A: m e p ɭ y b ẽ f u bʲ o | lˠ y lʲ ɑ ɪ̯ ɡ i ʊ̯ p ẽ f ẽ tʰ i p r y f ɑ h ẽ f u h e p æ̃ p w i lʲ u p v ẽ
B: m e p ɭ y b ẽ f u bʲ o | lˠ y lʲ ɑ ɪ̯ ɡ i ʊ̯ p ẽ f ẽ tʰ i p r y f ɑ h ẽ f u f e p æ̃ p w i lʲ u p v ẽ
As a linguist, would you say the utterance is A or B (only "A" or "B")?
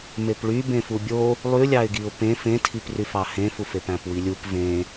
B